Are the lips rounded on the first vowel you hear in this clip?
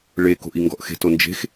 no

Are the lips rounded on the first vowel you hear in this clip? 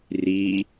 no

